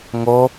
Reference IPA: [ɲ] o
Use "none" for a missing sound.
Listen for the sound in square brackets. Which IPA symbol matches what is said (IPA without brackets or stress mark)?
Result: ŋ